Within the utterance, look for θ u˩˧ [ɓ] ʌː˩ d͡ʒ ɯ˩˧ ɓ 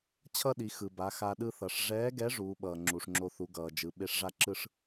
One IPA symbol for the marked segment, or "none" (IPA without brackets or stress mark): ɡ